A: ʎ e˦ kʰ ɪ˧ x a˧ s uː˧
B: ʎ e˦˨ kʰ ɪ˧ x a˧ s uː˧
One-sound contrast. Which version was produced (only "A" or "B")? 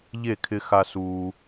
B